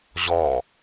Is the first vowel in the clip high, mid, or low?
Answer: mid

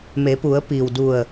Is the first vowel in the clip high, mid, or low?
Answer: mid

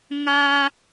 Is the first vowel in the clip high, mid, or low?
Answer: low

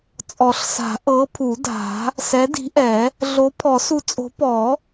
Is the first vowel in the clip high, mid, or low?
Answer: mid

